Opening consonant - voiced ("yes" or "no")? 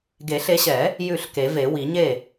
yes